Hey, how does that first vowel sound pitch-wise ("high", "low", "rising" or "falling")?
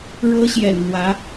high